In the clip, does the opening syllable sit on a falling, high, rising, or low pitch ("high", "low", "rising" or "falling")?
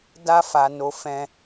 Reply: high